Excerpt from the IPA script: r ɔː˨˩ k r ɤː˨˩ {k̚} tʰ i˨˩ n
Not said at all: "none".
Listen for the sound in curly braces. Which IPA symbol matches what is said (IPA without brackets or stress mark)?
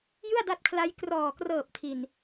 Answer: p̚